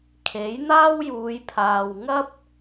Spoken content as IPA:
kʰ e˨˥ j n̪ aː˥ w j uː˨˧ j pʰ aː˨ w ŋ ɐ˥ p̚

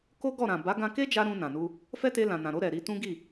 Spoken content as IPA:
k o˦ ɡ ɔ˦˨ ɾ ã˨ b a˨˦ ɡ ã˧ k e˦ d͡ʒ a˧ ɾ ũ˧ n ã˨ n u˧ | f ɛ˦ t e˧ l ã˨ n ã˨ ɾ o˧ ɾ ɛ˨ ɾ i˧ t ũ˦ ɡ i˦˨

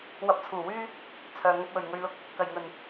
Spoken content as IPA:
w ɐ˧ p̚ t͡sʰ uː˨˩ w yː˥ | t͡sʰ œː˨ ŋ ɐ˧ p̚ w ɵ˨˩ ɥ ŋ ɵ˧ ɥ l ʊ˧ k̚ | k ɐ˨˩ j ŋ ɵ˨˩ n

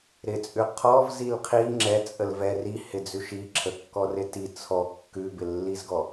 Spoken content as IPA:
ɾ ɪ t͡sʼ ʉ qʰ ɔ v z i l qʰ i ŋ͡ǁ ɛ t͡sʼ ə l v ɛ r i h ɪ d͡z ʉ ʃ i ǁʰ ə kː ɔ r ɪ t i t͡sʰ ɔ kː ʉ b ɪ lː i z ɡ ɔ

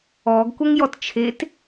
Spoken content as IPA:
ɔ ɡ kʷ ə ŋ j ɔ t t͡ʃʰ e t

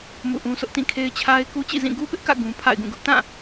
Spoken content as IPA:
m ṵ˦˨ ʔ ũ˦ s ʊ˦ ʔ t ĩ˦˨ kʰ e˦ ɪ̯ t͡ɕʰ a˦ ɪ̯ k u˦ t͡ɕ ḭ˦˨ z ĩ˦˨ ɡ u˦ p ɪ˦ ʔ k ä̰˦˨ ɡ ũ˦ pʰ a̰˦˨ ɪ̯ ɡ ũ˦˨ ɡ ʊ˦ ʔ t ã˦˨

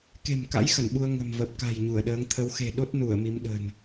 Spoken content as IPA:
k e̤˨˩ m k a̰˧˥ j x ə˧˩ n ɓ u˧ ə̯ ŋ ə̤˨˩ m v ə˨˩ p̚ k a̤˨˩ j ɲ u˧˩ ə̯ ɗ əː˨˦ ŋ t̪ʰ ə˨˦ w x e̤˨˩ ɗ o˦˥ t̚ n u˧˩ ə̯ m i˨˦ m ɗ ə̤˨˩ n

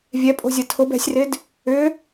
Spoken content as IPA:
vʲ ɛ pʼ o̤ zʲ ɐ tʰ ʊ b ɛ̤ sʲ r ɪ d | ʏ

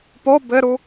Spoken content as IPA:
p o b ɘ ɾ u

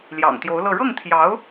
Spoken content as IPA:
l j ɑ̰˨˩ ŋ t̪ j o˧˥ ʊ̯ l ɤ˥˧ ɻ ɤ˥˩ ŋ t̪ʰ j ɑ˧˥ ʊ̯

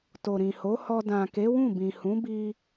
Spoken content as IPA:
t o˨ ɾ ĩ˨ h o˨˦ h ɔ˧ d ã˨ k e˨˦ w ũ˦˨ b ĩ˨ h ũ˨˦ b i˧

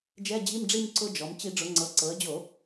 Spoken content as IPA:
d͡ʒ ɛ˧˥˧ d͡ʑ i˧˥˧ m ɖ͡ʐ i˥˧ m ǀ ʊ˧ d͡ʒ ɔ˩˧ m t͡ɕ i˧˩˧ ɖ͡ʐ ʊ˩˧ ŋ͡ǀ ɤ˩˧ ǀ ɤ˩˧ ə̯ d͡ʑ o˧˩˧

